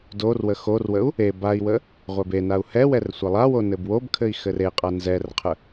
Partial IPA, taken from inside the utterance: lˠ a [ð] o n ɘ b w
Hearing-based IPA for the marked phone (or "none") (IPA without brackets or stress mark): w